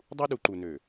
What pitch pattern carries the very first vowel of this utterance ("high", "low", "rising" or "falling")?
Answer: high